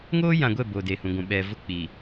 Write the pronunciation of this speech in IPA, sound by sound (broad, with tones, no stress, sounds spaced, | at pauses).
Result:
ŋ oː˦ j ã˨ ɡʷ ɛ˦˨ b oː˨ d e˨ h ũ˨ ɡʷ ũ˨ ɓ ɛ˨ v ʊ˦ k͡p i˨